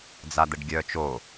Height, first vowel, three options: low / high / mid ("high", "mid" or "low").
low